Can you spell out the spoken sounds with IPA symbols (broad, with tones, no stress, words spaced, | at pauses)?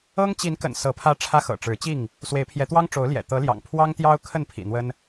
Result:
ɤ˦ŋt͡ɕi˨˦nkə̰˨˩n sɤ˨˦pʰä˦ʈ͡ʂʰä˦xɤ̰˨˩ ʈ͡ʂɻ̩˨˦t͡ɕi˥˨ŋ | swe˨˦ɪ̯pʰjɛ˨˦ t̪wɑ˦ŋʈ͡ʂo˨˦ʊ̯ljɛ̰˨˩ t̪ɤ˨˦ljɑ̰˨˩ŋ pʰwɑ˦ŋt̪jɑ˦ʊ̯ kʰə˥˨npʰḭ˨˩n̪wə˦n